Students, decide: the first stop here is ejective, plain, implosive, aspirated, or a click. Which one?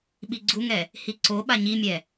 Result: implosive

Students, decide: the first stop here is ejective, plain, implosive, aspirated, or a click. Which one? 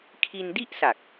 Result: aspirated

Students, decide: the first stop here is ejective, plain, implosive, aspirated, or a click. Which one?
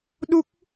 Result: implosive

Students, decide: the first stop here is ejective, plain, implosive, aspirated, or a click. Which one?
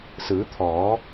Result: aspirated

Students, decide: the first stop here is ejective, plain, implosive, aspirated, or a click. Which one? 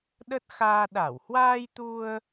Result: implosive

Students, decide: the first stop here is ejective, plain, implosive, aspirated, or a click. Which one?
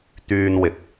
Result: plain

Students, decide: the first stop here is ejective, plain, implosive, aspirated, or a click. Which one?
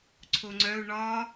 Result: click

